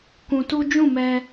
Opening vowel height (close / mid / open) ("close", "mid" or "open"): close